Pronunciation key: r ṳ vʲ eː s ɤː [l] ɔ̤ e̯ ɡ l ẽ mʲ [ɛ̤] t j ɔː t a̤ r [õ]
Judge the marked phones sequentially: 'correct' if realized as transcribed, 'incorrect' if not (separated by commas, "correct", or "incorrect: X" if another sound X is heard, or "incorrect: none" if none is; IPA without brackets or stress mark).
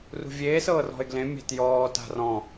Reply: incorrect: r, correct, incorrect: ɔ̃